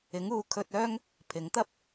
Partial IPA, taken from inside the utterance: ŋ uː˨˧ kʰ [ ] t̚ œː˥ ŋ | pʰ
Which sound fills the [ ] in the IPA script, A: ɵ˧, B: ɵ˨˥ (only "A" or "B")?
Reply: A